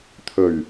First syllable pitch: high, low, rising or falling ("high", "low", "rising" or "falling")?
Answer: low